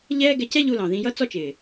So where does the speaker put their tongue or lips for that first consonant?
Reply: palate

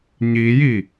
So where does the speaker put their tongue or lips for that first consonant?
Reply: palate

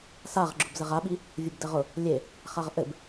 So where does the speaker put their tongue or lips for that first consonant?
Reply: tongue tip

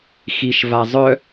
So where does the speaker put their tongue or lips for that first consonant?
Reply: velum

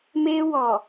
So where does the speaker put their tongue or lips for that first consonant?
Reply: lips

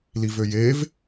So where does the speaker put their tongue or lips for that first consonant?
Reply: tongue tip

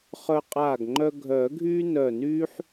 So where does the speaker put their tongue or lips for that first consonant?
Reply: uvula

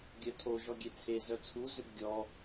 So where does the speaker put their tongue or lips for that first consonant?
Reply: velum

